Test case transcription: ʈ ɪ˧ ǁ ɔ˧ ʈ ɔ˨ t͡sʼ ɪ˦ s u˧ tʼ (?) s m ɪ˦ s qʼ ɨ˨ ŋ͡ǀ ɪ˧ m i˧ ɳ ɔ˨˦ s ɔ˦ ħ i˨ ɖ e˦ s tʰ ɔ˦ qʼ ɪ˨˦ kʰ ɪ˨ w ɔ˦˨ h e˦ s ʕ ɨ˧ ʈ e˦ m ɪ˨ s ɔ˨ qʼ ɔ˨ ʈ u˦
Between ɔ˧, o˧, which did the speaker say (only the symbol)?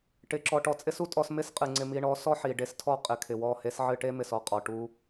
ɔ˧